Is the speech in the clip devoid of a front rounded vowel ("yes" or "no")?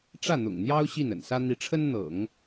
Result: yes